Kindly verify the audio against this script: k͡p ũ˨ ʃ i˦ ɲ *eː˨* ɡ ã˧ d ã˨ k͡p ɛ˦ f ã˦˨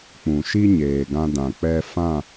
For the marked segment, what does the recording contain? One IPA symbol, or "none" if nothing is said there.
eː˨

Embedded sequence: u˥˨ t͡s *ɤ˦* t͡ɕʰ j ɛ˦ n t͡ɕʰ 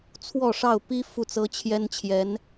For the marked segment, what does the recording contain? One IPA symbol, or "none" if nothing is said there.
ɤ˦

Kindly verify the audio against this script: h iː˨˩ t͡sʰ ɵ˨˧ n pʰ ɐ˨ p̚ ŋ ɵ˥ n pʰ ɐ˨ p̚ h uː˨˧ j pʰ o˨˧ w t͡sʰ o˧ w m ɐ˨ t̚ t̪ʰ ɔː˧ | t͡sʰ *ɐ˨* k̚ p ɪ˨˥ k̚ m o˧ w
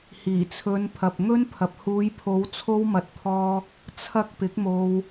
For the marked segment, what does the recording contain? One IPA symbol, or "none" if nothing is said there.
ɐ˨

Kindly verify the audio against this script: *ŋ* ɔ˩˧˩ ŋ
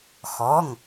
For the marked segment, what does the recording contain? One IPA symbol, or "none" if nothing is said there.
x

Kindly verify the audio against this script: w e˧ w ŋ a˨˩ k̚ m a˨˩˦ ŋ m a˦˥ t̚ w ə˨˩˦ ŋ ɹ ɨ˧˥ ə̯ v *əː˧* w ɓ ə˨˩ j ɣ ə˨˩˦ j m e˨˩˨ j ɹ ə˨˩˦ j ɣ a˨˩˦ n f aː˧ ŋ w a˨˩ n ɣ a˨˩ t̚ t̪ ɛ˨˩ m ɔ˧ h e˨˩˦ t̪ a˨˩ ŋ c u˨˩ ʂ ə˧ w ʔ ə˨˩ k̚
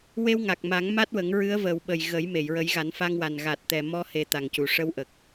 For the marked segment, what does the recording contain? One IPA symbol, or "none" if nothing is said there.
əː˨˩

